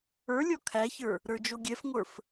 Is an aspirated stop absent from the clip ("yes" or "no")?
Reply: no